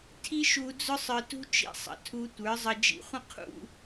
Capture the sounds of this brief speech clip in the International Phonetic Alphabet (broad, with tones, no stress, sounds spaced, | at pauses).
tʰ i˦ ʃ u˧ d͡z ʊ˦ sˤ ə˞˧ t ṳ˦ t͡ʃ ḭ˧ sˤ ə̰˨ tʰ u˧ tʷ ə˞˨˦ zˤ ə˧ d͡ʒ ḭ˧ χʷ ə̃˦ qʰ ṵ˧